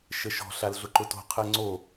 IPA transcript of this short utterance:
ʃ ə ʃ ɔ̤ ɬ a l ɮ ʊ ǃ ʊ t o̤ qʰ ɜ ŋ͡ǀ o

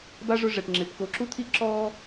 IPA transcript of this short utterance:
b a˥ ʐ ʊ˦ ʐ ɛ˩ ʈ ŋ͡ǁ ɪː˩ p k o˨ ǁ u˥ t̪ʰ i˥ ǁ ɔː˥

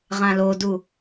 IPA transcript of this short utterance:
ʁ ã l o d u

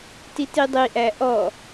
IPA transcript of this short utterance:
t i t i dˤ i ʔ æ ʔ ɔ

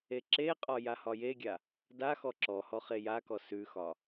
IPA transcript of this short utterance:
e ǁ e qʼ ɒ j a h ɒ j e ɡʲ a | d a x ɔ ǁ ɔ h ɔ χ e j a k ɔ s ʉ x ɒ

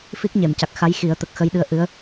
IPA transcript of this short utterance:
f i˦˥ k̚ ɲ e˨˩˨ m c a˨˩ k̚ x a˧˥ j x i˨˩˦ ə̯ t̪ ə˨˩ k̚ x ə˧ j ɗ ɨ˧ ə̯ ʔ ɨ˧˥ ə̯

